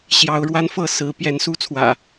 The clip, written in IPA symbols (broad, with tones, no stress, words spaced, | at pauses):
ɕjɑ˨˦ʊ̯ɻwa˦nfɤ˥˨ sɹ̩˨˦ pjɛ˨˦nsu˦t͡sʰwä̰˨˩